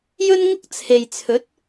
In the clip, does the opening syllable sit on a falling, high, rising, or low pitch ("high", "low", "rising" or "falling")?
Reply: high